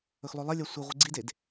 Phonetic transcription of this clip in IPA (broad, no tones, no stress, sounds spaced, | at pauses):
ɵ x lˠ ɵ lˠ ɐ lʲ a sʷ i ʁʷ ɨ ɡ͡ǀ i d e d